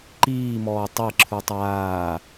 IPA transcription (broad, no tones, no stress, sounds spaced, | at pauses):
ǃ iː m ɔː tˤ e ǁʰ u tˤ aː